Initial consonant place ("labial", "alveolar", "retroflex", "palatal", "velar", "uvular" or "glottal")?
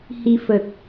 glottal